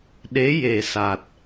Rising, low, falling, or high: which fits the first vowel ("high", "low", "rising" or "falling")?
rising